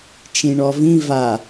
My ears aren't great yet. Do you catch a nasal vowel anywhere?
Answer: yes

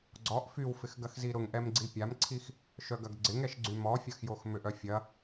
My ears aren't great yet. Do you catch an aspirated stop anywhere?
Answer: yes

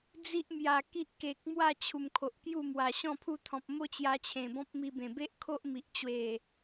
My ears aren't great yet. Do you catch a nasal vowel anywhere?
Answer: yes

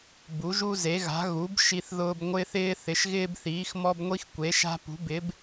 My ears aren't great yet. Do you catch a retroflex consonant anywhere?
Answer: no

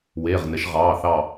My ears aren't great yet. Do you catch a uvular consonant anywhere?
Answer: yes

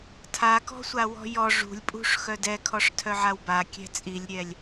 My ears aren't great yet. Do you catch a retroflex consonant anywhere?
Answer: yes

